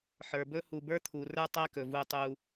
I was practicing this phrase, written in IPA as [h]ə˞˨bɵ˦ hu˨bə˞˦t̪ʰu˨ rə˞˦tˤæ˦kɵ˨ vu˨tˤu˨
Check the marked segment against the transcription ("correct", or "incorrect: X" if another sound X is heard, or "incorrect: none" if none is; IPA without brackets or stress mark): incorrect: ħ